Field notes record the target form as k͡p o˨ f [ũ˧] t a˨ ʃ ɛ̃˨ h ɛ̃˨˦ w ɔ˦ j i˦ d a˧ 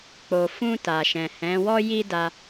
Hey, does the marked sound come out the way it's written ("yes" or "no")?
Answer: yes